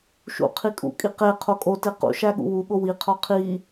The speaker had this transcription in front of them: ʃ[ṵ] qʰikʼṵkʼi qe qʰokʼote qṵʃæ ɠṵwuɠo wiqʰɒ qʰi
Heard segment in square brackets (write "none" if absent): ṵ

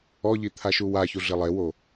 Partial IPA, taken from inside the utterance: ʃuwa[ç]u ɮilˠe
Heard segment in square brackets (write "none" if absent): ç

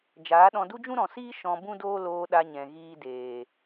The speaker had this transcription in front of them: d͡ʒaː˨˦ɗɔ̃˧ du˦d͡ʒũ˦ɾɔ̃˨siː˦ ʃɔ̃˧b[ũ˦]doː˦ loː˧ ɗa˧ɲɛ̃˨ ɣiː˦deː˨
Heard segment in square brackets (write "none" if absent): ũ˦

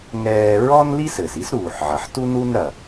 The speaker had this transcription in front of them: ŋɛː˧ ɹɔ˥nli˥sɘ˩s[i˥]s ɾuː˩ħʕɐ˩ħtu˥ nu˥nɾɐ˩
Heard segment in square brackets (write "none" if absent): i˥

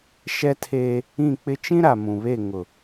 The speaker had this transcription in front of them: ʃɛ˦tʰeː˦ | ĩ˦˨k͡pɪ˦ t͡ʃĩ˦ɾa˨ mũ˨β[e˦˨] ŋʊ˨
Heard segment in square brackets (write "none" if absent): e˦˨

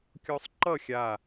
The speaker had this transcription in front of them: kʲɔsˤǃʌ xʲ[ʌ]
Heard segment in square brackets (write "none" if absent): a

